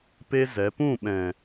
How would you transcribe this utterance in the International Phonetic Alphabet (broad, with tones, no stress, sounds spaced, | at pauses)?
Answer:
p e˦ z ɛ˨˦ p ũ˦˨ ɓ ɛ̃˨